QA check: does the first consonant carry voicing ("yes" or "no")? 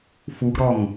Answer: no